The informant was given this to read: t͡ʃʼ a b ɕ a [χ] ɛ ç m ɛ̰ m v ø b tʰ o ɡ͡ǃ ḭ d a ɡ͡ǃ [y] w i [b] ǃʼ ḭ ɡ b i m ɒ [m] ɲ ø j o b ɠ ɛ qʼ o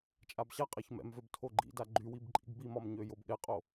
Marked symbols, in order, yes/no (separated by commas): no, yes, yes, yes